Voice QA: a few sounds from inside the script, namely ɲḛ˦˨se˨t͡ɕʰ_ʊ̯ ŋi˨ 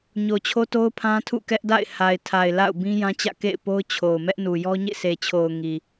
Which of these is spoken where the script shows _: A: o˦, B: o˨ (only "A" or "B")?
B